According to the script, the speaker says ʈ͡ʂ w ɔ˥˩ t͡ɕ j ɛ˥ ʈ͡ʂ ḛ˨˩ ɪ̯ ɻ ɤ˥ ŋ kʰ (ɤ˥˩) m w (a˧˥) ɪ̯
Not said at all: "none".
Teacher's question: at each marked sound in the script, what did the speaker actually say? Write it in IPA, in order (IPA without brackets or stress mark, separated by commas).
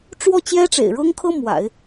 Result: ɤ˥, a̰˨˩˦